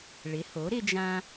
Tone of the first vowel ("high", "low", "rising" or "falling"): rising